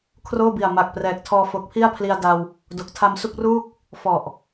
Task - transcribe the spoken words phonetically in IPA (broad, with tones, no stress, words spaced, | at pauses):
kʰroː˥˩bi˨˩a̯ma˨˩k̚ prɛː˨˩k̚tʰɔː˧fo˨˩k̚ pʰi˥˩a̯pʰli˧a̯da˧w | do˨˩k̚tʰa˧msu˥˩k̚ruː˥˩k̚ | fɔ˨˩ʔ